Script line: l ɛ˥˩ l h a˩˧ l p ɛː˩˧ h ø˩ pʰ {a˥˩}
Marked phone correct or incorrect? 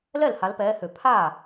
correct